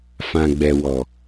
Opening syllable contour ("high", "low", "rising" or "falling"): low